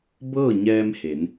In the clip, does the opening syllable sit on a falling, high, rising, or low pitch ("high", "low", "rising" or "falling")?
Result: falling